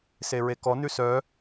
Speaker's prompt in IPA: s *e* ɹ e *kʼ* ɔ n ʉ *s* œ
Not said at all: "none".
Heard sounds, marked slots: e, k, s

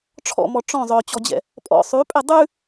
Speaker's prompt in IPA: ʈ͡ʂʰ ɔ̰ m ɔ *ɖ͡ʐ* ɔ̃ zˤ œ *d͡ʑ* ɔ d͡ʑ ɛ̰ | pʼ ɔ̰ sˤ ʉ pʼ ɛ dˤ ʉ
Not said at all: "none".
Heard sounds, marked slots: ʈ͡ʂ, t͡ɕ

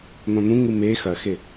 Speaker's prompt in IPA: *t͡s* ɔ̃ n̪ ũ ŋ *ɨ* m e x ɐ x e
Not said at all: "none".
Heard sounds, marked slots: n̪, ɨ

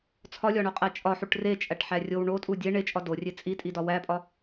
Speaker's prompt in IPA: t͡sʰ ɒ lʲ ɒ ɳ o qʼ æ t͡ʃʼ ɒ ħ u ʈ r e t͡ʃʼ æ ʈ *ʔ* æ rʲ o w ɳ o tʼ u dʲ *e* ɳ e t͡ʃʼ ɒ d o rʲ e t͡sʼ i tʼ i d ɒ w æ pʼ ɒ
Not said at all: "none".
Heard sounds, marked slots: ħ, e

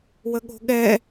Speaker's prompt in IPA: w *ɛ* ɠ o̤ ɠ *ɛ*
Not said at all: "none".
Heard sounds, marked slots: ə, ɛ

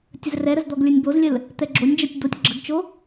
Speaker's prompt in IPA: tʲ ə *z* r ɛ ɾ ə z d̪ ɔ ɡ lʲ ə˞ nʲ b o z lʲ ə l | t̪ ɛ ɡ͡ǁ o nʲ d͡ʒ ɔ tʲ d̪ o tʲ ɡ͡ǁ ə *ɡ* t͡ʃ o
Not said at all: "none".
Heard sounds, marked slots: z, ɡ

